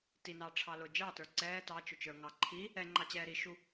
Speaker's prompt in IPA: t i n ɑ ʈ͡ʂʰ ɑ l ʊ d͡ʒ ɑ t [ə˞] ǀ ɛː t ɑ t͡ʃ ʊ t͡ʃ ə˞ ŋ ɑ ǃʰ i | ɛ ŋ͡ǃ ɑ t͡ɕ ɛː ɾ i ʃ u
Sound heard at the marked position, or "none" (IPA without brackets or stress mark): ə˞